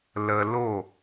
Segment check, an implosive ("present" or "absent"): absent